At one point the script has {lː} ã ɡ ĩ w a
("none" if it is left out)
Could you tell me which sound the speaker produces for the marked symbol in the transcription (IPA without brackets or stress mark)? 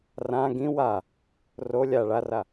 r